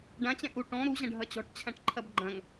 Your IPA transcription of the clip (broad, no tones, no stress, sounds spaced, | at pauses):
ɖ ã t͡ɕ ɛ̃ ʔ u ʈ ɔ̃ ɾ u ʑ ɐ̃ ɖʱ ɐ t͡ɕ ɔ̤ ʈ t͡ɕʰ ã ʈ ǃʰ ɐ b ɡ͡ǃ ɐ̃ ŋ